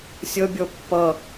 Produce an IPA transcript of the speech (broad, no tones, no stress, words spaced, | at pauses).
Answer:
sʲʌbʲɔ pːʌ